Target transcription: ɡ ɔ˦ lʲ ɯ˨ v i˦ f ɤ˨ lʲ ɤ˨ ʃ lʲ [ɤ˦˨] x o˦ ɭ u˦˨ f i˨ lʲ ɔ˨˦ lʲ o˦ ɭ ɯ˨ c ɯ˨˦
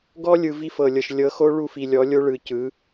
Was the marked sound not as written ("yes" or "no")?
yes